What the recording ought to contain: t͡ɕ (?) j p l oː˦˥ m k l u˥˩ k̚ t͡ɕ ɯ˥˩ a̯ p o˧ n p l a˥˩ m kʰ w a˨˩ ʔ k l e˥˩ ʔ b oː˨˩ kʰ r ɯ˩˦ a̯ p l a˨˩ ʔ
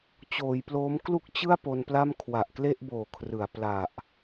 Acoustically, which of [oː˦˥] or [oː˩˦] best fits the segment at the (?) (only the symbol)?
oː˩˦